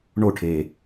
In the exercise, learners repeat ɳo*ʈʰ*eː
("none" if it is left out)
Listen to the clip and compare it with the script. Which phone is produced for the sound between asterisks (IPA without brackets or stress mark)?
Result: ʈʰ